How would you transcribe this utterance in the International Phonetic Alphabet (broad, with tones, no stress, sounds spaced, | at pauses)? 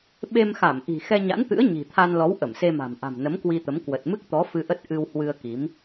ɓ e˧ m x a˧˩ m ʔ i̤˨˩ x ɛ˧ ɲ a̰˧˥ n t̪ ɨ̰˧˥ ə̯ ɲ i̤˨˩ t̪ʰ a˧ n l ɔ˨˦ w ʔ ə˧˩ m s e˧ m a̤˨˩ m ʔ a̤˨˩ m n ə˨˦ m k w i˧ t̪ ə˨˦ m k w ə˨˩ t̚ m ɨ˦˥ k̚ t̪ ɔ˨˦ f ɨ˧ ʔ ə˦˥ t̚ ʔ ɨ˧ w h w ɨ˧ ə̯ k i˨˦ m